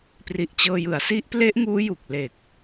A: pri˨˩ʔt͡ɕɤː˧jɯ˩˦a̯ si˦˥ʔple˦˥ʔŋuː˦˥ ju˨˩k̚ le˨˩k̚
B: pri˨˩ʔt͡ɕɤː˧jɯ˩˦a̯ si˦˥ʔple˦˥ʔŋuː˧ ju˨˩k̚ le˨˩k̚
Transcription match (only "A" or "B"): A